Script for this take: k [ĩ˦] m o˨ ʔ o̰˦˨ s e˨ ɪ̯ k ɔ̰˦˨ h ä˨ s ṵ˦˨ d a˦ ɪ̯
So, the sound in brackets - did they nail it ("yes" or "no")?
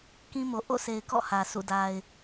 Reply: yes